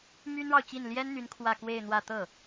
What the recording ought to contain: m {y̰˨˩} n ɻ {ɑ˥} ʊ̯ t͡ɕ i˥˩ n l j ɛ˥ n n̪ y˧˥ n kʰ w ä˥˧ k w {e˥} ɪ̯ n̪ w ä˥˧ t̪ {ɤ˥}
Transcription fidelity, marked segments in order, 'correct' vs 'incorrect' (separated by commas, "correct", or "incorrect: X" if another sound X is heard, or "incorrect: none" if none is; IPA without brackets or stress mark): incorrect: y˥, incorrect: ɑ˨, incorrect: e˥˧, incorrect: ɤ˥˩